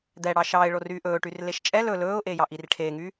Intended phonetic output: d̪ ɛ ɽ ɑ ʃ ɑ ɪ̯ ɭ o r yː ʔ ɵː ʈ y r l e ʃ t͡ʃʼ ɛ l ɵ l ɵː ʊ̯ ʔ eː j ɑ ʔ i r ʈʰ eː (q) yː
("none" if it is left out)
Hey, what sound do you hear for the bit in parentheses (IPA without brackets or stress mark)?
ŋ